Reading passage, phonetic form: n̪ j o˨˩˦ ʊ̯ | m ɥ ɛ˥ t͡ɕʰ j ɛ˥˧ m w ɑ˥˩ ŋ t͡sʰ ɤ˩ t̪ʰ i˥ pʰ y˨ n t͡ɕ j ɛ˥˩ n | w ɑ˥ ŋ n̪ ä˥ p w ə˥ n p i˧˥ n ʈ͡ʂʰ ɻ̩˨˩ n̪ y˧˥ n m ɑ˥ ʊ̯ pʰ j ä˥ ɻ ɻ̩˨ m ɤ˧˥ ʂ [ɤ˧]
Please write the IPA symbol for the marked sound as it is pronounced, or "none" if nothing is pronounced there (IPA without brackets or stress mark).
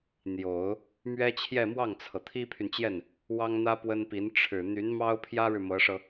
ɤ˧